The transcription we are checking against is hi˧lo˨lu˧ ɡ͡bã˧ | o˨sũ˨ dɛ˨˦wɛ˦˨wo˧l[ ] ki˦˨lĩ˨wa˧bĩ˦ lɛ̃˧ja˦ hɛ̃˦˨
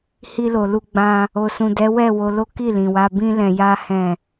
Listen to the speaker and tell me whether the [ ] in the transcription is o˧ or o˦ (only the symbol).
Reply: o˦